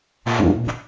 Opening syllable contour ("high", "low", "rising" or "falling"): high